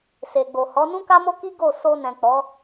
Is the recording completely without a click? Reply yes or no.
yes